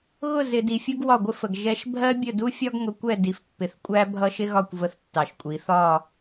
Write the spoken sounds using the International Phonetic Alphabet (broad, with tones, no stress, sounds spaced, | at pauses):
ɣ ʊ˦˨ z ɪ˨ d i˨ fʲ ʊ˦ ɡ w ɒ˦˨ ɡʷ ɪ˦ f ə˨ ɡ ʒ ɛ˦ ʃ bʱ ɜ˦ bʲ ə˦˨ d u˦ fʲ ɒ˦ ɡ ŋ ʊ˨ kʷ ɛ˦˨ d i˨ f pː ɪ˨ θ kʷʼ æ˦ bʱ ʌ˦ ʃ ɪ˦ ɣ ɒ˦˨ kʷ v ə˦ θ tː ɑ˨ ʃ kʷʼ i˨˦ θ ɒ˦˨